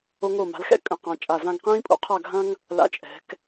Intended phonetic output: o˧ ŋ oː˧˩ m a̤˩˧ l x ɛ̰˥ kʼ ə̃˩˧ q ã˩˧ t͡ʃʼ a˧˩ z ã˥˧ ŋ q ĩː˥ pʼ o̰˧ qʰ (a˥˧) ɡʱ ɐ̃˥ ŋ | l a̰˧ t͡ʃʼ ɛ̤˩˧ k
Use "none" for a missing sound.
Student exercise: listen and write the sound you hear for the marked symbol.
a˥˧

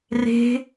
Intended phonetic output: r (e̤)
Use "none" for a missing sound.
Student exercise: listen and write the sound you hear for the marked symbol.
e̤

